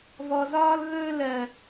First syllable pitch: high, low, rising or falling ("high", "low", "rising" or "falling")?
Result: low